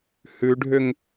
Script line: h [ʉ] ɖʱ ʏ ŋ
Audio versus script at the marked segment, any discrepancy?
no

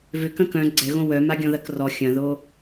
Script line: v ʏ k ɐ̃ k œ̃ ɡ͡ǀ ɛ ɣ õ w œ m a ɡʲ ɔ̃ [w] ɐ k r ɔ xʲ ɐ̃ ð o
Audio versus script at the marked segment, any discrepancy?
yes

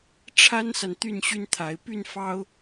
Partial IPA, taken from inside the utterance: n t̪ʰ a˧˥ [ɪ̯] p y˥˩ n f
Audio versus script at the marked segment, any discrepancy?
no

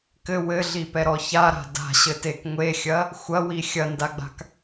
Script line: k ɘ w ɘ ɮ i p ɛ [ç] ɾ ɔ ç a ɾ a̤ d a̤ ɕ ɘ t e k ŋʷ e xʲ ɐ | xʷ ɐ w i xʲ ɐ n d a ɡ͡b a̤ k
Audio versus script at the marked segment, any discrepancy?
yes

